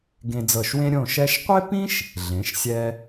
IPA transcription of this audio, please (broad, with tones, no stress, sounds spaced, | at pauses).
ɡ ẽ˧ d͡z ɤ˧˩ ʃ w ẽ˥ ɾʲ õ˥˧ ʃ ɛ˥ ʃ qʷ e˥ p ĩ˥ ʃ | ɮ ẽ˩˧ ʃ sʲ ɛ˧